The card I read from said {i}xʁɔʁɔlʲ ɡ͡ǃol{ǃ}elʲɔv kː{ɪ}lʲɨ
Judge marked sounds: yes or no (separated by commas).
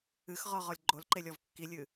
no, yes, no